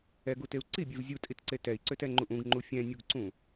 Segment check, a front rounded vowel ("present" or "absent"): present